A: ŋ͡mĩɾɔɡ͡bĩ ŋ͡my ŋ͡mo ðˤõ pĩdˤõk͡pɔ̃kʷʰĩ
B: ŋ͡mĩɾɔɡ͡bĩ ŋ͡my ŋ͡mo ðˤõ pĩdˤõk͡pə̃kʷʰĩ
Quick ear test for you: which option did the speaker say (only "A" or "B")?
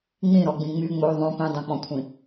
A